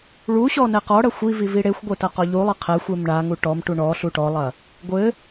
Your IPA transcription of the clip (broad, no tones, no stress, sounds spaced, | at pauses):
ɭ u ɕ ɔ n ɛ q ɔ ɽ ɐ xʷ i v i v i ɽ e xʷ ɡʷ ɘ t ɐ q ɔ ʎ u lˠ ɘ qʰ ɛ xʷ e m ɳ a ŋ u ʈ ɔ m ʈ u ɳ ɔ ɬ u ʈ ɔ lˠ ɐ | ɡʷ ɘ